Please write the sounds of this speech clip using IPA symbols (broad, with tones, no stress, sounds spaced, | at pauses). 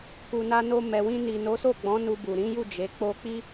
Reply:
k u˨ n a˧ n o˧ m ɛ˨ w ĩ˧ n i˨ n o˨˦ s o˦˨ ɡ͡b ɔ̃˨˦ n u˧ b u˨ ɾ ĩ˨˦ j u˦˨ d͡ʒ e˨˦ k͡p o˦ k͡p i˦